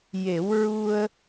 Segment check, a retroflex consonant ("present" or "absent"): absent